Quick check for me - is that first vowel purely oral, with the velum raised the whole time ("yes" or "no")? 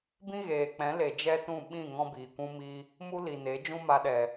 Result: no